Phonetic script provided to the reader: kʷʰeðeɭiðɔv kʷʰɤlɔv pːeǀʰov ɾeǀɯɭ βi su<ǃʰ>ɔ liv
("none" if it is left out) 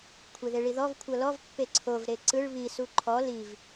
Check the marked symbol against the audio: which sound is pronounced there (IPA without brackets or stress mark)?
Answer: ǃʰ